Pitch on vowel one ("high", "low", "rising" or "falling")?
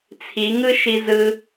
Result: rising